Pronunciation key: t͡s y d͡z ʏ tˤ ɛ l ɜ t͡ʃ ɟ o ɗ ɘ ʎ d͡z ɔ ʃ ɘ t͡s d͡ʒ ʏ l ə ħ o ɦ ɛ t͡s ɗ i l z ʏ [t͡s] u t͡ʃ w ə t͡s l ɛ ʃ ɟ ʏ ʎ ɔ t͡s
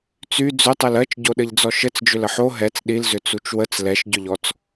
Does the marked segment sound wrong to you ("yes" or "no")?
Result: no